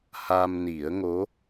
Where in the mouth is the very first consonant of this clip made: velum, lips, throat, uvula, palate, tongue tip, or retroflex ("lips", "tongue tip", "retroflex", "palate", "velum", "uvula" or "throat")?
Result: throat